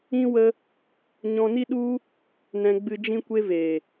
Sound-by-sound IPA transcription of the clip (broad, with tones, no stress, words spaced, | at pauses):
ĩ˦wə˦ | ɲɔ̃˧ni˦ɗu˦ | nɛ̃˧ɡ͡bɨ˧ d͡ʒĩ˦kʷe˦ ve˨